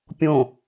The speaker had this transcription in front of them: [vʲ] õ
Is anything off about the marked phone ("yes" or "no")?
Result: yes